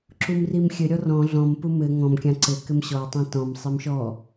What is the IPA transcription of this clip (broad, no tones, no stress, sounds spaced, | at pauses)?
ǁ u m r i m xʲ ɘ ɾʲ ɔ r ɔ̃ ɮ ɔ̃ m p u m ɘ ŋ ɔ̃ m kʲ ã ǀ ɘ k ɘ m ɕ ɔ tˤ ĩ t ɔ̃ m sˤ i m ʃ ɔ